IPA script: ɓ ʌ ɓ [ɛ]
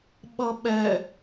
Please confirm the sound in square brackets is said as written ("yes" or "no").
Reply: yes